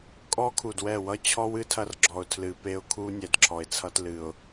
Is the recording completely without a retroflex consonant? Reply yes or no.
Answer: yes